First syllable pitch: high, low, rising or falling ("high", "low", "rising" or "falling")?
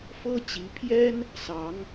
high